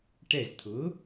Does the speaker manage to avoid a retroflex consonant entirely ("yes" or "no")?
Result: no